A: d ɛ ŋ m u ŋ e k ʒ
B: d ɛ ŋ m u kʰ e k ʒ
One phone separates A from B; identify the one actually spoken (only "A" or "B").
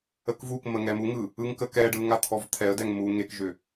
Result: A